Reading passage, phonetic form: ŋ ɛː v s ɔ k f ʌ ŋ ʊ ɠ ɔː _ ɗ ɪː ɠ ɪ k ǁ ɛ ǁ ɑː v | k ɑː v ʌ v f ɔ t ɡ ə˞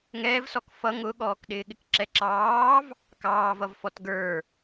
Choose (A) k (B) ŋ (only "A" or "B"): A